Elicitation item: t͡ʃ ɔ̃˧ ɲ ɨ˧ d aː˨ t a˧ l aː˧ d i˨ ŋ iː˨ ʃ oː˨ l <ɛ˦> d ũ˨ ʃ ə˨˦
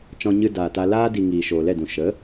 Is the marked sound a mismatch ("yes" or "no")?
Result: yes